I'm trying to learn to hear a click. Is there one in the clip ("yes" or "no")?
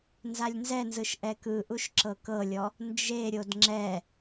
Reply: yes